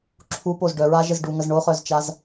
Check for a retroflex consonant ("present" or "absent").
present